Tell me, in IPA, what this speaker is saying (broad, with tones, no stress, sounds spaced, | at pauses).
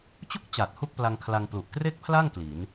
t͡ɕ u˥˩ k̚ t͡ɕ a˨˩ t̚ h u˥˩ k̚ p l a˧ ŋ kʰ l a˧ ŋ p l u˨˩ ʔ k r e˥˩ k̚ pʰ l a˥˩ ŋ k l i˩˦ n